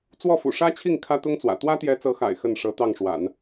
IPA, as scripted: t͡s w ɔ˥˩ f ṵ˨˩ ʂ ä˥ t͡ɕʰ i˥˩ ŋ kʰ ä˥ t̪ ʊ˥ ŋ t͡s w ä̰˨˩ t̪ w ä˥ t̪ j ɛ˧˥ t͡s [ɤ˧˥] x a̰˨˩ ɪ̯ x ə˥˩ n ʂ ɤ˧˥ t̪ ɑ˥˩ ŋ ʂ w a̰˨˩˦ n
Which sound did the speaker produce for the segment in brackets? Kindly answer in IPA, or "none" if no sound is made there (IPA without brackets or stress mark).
ɤ˧˥